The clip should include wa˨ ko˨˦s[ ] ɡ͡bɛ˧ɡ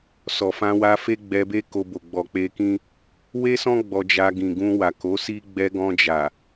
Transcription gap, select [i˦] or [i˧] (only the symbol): i˦